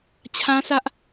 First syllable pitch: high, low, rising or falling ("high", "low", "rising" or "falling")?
high